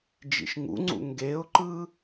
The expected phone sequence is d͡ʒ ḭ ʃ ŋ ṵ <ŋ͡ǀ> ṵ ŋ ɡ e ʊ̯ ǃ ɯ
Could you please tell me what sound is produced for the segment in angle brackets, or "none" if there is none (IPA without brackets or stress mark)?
ŋ͡ǀ